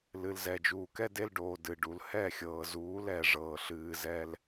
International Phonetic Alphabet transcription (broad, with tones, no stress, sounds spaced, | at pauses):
l ɨ˨ l z ɛ˨ d͡ʒ uː˨ k ɛ˦ d e˦ l ɖ oː˨ d ɨ˨ ɖ u˨ l h ɛ˦˨ xʲ ɤː˨ z uː˨˦ l ɛ˨ ʐ ɤː˨ ɬ ɨː˨ z ɛ˦ l